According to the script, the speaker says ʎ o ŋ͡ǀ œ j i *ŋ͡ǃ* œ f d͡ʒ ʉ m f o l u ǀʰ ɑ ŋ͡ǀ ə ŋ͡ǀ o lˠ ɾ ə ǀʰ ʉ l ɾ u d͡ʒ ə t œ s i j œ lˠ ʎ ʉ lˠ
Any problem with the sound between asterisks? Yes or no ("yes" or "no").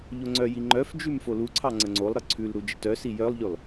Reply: no